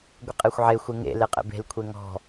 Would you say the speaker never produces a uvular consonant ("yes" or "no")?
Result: no